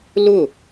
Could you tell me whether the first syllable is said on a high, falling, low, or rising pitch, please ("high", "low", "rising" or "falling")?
falling